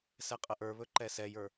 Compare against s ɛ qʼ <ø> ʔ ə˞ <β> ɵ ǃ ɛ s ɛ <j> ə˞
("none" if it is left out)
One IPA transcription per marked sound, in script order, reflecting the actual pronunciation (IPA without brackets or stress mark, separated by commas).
ə, β, j